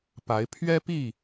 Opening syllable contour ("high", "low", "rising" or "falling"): rising